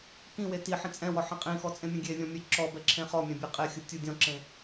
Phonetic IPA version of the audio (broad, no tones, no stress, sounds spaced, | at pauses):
k ĩ w e t i ħ ĩ t͡sʼ ɛ̃ w ɔ ħ ĩ qʼ ĩ x ɔ t͡sʼ ẽ mʲ ẽ ɡʲ e vʲ ɔ̃ mʲ ɛ ǁ ɔ b ɛ ǁʰ ẽ χ ɔ mʲ ɛ̃ bʲ e qʼ e xʲ ɯ tʲ u dʲ ɔ̃ ǁ ẽ